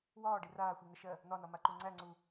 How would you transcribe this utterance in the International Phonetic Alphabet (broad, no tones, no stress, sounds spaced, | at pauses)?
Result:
w ɒː ɖ i r aː xʷ i ŋ ə ʃ ɜ | n̪ ɒ n ɒ m a ǃ u ŋ͡ǀ æ ŋ͡ǀ u